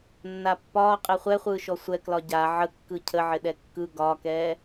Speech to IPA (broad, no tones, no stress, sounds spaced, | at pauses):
nː a pː ɒː qʼ e χʷ ɛ χʷ ɯː ʃ ɔ sʷ ɛ k l ɒ ɟ a ʕ ə kː ɯ cʰ ə ʕ ɪ ɗ ɛ kː ɯ ɡ ɒ k ɛː